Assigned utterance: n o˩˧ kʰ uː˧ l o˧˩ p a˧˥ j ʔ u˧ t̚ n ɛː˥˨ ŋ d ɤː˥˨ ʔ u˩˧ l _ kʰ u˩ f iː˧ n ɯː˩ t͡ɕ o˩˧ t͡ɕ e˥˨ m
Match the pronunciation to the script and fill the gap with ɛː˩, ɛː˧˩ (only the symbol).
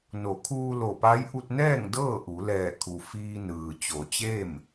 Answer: ɛː˧˩